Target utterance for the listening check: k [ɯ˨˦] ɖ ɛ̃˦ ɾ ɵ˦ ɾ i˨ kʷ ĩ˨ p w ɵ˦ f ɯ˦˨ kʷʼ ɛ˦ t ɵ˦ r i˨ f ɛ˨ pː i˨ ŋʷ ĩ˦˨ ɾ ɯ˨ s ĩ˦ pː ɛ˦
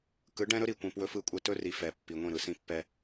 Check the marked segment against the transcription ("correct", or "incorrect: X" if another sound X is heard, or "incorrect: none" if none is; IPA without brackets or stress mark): correct